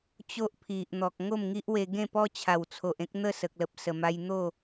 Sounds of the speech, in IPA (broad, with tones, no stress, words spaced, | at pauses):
t͡ɕo˦ʔpʰi˨ʔn̪ɔ˨k̚ ŋo˥˧mŋi˦ʔwe˧ ɡẽ˥˧pɔ˦t͡ɕʰa˨˩wt͡sʰo˨ʔ ẽ˦k̚n̪ə˥˧ sə˨k̚lə˨p̚sə˨˩ ma˧jn̪o˥˧